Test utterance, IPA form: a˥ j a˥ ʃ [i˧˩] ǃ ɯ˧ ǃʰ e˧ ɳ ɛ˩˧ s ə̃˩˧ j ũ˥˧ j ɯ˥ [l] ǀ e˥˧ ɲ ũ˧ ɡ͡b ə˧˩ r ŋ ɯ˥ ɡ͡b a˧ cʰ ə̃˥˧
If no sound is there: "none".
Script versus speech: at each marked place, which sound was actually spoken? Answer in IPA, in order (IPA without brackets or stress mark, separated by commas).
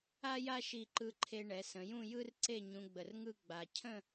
i˧˩, r